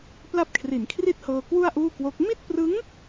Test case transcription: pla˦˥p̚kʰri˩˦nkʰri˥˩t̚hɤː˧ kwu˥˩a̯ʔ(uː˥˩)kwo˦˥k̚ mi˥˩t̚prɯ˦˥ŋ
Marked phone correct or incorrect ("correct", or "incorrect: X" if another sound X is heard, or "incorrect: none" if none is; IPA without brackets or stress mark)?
correct